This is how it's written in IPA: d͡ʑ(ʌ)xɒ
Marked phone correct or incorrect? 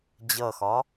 correct